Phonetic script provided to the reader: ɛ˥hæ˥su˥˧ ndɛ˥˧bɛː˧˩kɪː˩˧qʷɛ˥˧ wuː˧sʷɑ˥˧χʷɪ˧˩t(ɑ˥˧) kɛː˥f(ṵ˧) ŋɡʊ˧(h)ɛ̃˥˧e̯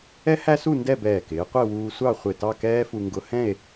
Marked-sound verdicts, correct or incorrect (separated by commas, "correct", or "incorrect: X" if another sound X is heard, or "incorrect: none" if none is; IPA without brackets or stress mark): correct, incorrect: u˧, correct